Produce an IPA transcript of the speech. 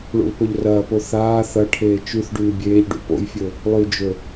ɭṵlpɵʎrɐːpo θaː θɐʈʰeː t͡ʃʉθ ɖʉːbʲeːʎɖṵ po̰jfʲɵ | lˠʉd͡ʒɵ

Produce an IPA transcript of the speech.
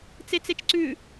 t͡set͡set͡ʃǀʉ

